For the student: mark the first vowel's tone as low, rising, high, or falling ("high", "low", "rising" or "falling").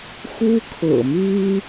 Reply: high